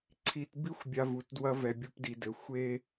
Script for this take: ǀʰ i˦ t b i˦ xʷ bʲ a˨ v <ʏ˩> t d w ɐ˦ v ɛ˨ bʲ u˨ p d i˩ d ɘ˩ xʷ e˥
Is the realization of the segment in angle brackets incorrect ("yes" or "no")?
yes